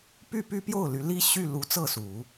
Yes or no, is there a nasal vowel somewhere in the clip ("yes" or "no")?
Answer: no